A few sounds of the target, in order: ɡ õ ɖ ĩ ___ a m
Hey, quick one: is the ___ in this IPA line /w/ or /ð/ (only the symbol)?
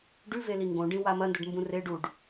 w